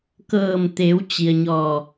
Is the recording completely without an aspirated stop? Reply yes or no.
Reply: yes